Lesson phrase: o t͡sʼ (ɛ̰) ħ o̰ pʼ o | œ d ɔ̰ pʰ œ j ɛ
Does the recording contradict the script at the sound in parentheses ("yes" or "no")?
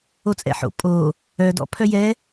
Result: no